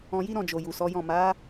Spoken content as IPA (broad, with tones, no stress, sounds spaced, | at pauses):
ɔ̃˧ j i˦ ɾ ɔ̃˦˨ d͡ʒ o˨ j u˨ s ɔ˨˦ j ɔ̃˦˨ m a˨˦